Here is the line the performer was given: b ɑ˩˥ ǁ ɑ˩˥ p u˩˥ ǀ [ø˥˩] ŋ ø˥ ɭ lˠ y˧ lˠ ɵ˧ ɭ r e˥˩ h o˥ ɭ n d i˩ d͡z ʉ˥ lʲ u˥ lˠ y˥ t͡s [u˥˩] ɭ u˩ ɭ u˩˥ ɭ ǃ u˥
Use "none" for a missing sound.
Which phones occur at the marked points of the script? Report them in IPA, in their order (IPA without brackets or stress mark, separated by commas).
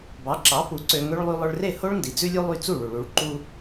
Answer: ø˧, u˥˩